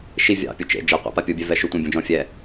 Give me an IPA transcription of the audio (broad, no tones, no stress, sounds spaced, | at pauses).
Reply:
ʃ i vʲ ɑ̰ pʲ u t͡ʃ ḛ d͡ʒ e qʷ ɑ̰ p a pʲ u bʲ ɛ v ɛ ʃ u tʷ ẽ bʲ ũ d͡ʒ ɔ̃ fʲ ɛ